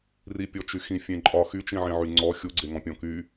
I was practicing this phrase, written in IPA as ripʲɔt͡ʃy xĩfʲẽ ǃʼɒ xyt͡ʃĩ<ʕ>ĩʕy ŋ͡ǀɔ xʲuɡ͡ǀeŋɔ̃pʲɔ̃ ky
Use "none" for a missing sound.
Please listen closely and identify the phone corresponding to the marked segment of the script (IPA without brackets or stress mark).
ʕ